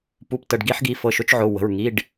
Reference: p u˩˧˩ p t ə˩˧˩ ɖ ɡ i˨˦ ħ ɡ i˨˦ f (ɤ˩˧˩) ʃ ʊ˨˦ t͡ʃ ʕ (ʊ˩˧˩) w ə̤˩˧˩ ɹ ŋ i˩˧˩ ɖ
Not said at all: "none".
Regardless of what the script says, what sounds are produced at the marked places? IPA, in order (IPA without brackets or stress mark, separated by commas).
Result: ɤ˩˧˩, ʊ˩˧˩